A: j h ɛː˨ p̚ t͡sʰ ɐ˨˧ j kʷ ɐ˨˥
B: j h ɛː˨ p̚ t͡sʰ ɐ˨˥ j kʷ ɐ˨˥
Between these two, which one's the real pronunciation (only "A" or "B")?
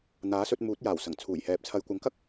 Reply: A